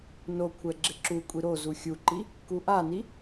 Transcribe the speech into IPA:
n o kʷʰ ɛ ɡ͡ǁ ɪ ǁ u kʷʼ i ɾ o z u xʲ u ǃ i | k u ʔ a n i

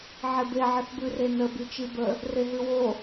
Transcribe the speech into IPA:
ʕ e b e ʕ ə θ b ʉ r e n ə b i t͡ʃ i b ə | r e ɦ ʉ w o

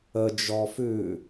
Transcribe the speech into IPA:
ə d͡ʒ ɔ f ʉ

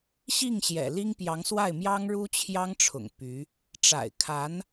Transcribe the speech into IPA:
ɕ i˥˩ ŋ ɕ j ɛ̰˨˩ l i˥ ŋ p j ɑ˧˥ ŋ s w a˥˩ ɪ̯ m j ɑ˥ ŋ ɻ u˥ t͡ɕʰ j ɑ˥ ŋ ʈ͡ʂʰ ʊ̰˨˩ ŋ p y˧˥ | ʈ͡ʂ a̰˨˩ ɪ̯ kʰ a˧˥ n

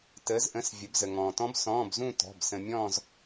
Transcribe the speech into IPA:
t əː˩˧ z ʔ ə̃˩˧˩ s vʲ ə˩˧ b z ə˩ ŋ ɔ̃ː˩ t ɔ̃˦˥ b s ɔ̃ː˩˧˩ b z ũ˦˨ t ɔ̤˩˧˩ b s ə̃˩ mʲ ɔ̃ː˦˨ z

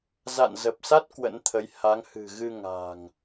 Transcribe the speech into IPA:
z a̰˧˨ n z ə˨˩ p̚ s a˦˥ t̚ k w ə̰˧˥ n t̪ʰ ə˨˦ j h a˨˦ ŋ h ɨ̤˨˩ ɣ ɨ˧ ŋ a̤ː˨˩ ŋ

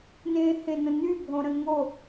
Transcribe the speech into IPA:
n ẽː h ẽ n ə̃ n y bʱ õ ɾ ə̃ ŋ o

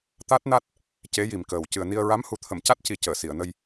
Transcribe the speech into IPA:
t̪ a˦˥ t̚ n a˦˥ t̚ | c e˧˥ j i˨˩ m k əː˨˩ w c ɨ˨˩ ə̯ n i˧ ə̯ ɹ a˧˥ m h u˨˩ t̪ʰ ə˨˩˨ m c a˦˥ t̚ c i˨˩ c əː˨˩˨ s i˨˩˨ ə̯ n ə˧ j

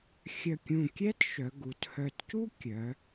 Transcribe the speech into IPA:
xʲ œ˧˩ kʲ ũ˧˩ kʲ ɛ˥ t ʃ œ˩˧ ɡ u˩˧ t h œ˧˩ t c u˥ kʲ œ˩˧

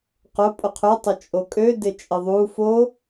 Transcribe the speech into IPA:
q ʊ pʼ ʊ qʰ ʏ tˤ ʊ t͡ʃʼ o kʼ ø d ɪ t͡ʃʼ ɪ ðˤ u f o

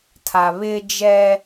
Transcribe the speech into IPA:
tʰ a˨ β ɪ˦ d͡ʒ ɛ˦

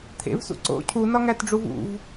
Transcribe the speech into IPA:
t̪ʰ ḛ v s ṵ ǀ o̰ cʰ u n ɒ ŋ æ t ɖ͡ʐ u v ṵ v

